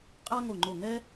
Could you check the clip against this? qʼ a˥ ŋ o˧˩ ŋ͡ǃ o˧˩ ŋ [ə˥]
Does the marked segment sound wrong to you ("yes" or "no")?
yes